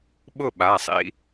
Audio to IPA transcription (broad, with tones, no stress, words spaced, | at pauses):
ɓʊ˥˨ɓa˩˧˩sˤḭ˦